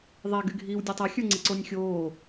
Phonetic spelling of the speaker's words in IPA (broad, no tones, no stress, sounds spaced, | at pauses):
ðˤ æ ɡ y ɡʱ iː w dʲ e tˤ ɛ xʲ ə˞ ŋ͡ǀ i ǀ o nʲ xʲ oː